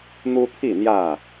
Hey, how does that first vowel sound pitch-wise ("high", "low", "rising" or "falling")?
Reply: high